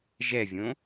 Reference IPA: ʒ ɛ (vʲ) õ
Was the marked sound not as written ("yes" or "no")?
no